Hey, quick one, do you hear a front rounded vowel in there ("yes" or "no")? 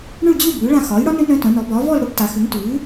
yes